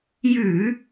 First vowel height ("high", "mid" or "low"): high